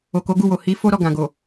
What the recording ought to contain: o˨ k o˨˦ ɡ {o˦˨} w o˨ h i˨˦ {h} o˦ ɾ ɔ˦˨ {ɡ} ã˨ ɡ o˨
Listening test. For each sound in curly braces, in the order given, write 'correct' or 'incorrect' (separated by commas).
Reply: incorrect, incorrect, correct